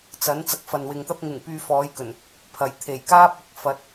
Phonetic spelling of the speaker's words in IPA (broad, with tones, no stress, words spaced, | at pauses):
t͡sɐ˨˥n t͡sɐ˨˥k̚fɐ˨nwɪ˨ŋ t̪ɐ˧p̚ŋɪ˨˩ŋ pyː˧fɔː˨˧jkɵ˨˩n | pʰɐ˨˩j t̪ʰe˨˩j kaː˥p̚ɪ˧k̚ fɐ˨˥t̚